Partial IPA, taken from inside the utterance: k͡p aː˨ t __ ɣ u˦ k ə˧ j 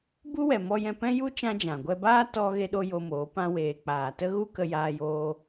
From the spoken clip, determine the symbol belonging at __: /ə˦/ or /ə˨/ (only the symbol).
ə˦